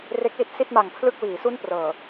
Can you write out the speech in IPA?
re˦˥k̚li˥˩t̚ si˥˩t̚ma˨˩ŋ pʰlɯ˥˩k̚wiː˩˦su˥˩n prɤː˨˩

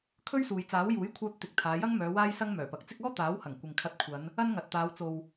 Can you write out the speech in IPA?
kʰɵ˥ɥsuː˨jt͡saː˨˥w juː˨˥jkʷʰœː˧p̚t̪ɪ˨k̚ t̪ʰaː˨˧jɐ˥ŋmœː˨˧ waː˧jsɐ˧ŋ mœː˨˩pɐ˨k̚t͡sɪ˥k̚ ɔː˥t̪aː˨˥whɐ˨˩ŋ kʷɪ˨ŋkʰɐ˧t̚kʷʰɐ˨˧n | ɐ˥nŋɐ˨t̚t̪aː˨˧w t͡so˨w

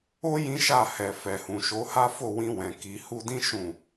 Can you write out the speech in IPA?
o˦ jĩ˦ʃa˦˨ hɛ˨fɛ˨hũ˨ ʃo˨˦ha˦fo˦˨ wĩ˧wɛ̃˨ ki˨hu˧dĩ˦ ʃũ˦˨

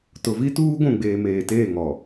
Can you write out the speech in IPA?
tʊ˨vi˦tuː˦ ɡʷũ˦˨ɡ͡beː˨ meː˨teː˦˨ŋɔ˨

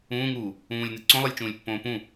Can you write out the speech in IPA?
ũːŋuː | ũːlʲnɨ ǀõlˠɨlʲt͡ʃũːlʲ pːõːpũ

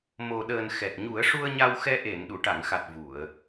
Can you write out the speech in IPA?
mo˨˩ɗəː˨˩n xɛ˨˩t̚ɲu˨˩˦ə̯ʂu˧ə̯ ɲa˧wxɛ˧ ʔe˨˩˨n ɗu˨˩˨ʈa˨˩˨ŋxa˨˩t̚ vu˨˩˨ə̯

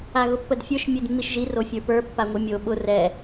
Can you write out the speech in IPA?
aɣʊpːədfʲə˞ʃ mʲedmːiʃʒi rofʲə˞pə˞ pːaŋʷɨmʲo ɓʊ rɛ

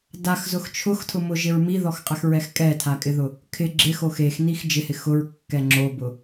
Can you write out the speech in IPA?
daxzʊx t͡ʃʰʊxtʰʊmʊʒɪɹ miðɔxqʼɛxɹɛx kʼɛtʰakʼɪðʊ | kʰɪ ɡ͡ǁɪxo xexnix d͡ʒɪhɪ xʊɹkːɛ ŋ͡ǁobʊ

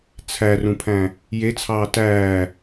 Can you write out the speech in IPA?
t͡sʰærũpʰæ̃ | jet͡sʰɑː tæː

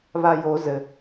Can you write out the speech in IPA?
βajo zɘ

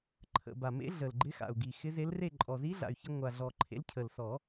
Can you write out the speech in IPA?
ǃʰə̰˨˩ ba˨˩mḛ˧˥ ɮə˨˩lɡ͡ǃɪ˧˥xa̰˨˩u̯ɡi˨˩ xɪ˧˥ze˧˥lre˥˨ ǃʼɔ˨˩zi˧˥ɮa̰˨˩y̯çɪ˧ ŋʷa˨˩ɮɔ˨˩ ǃʰḛ˧˥lcʰə˨˩l sɔ˨˩˦

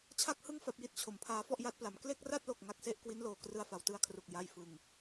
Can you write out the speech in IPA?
t͡ɕʰa˥˩k̚hɯ˥˩ŋ fa˦˥p̚ji˥˩t̚t͡ɕʰo˨˩mpʰaː˦˥ fɔ˥˩ʔja˦˥t̚pla˩˦m kle˥˩k̚ra˥˩t̚lo˨˩k̚ ŋa˦˥k̚se˥˩ʔ kwi˦˥nloː˨˩ krɯ˧a̯fa˩˦wtɯ˧a̯kʰru˨˩k̚ ja˨˩j fɯ˨˩ŋ

